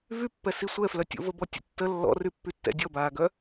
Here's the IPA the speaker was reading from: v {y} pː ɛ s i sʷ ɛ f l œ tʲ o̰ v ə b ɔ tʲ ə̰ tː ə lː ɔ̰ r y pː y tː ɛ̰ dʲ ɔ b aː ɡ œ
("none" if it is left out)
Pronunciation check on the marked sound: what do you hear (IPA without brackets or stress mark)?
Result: y